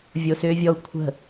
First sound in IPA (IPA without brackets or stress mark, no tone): vʲ